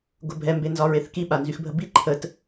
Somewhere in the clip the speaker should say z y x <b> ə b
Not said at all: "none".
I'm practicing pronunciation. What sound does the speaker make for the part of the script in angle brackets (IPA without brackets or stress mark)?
bʱ